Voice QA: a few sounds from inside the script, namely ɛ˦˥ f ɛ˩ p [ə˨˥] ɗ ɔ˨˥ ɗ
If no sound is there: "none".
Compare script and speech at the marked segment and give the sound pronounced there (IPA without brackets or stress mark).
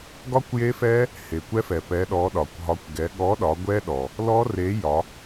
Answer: ɛ˨˥